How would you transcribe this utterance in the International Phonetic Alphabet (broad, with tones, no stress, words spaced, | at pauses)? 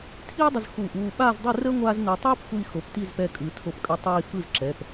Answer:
tʰiː˥dˤə˧z xu˧˩˧ ʔuː˩˧˩ɓaː˥˨zdˤɯ˥˨rəː˥ ŋʷaː˥znəː˧ tˤɯː˥pxʷi˧ xo˩˧˩pti˥˨zpɛ˧kʼɯ˩˧ tʰo˧˩˧pkʼə˧ tˤiː˧ fɯ˥˨zǁɛ˩˧˩p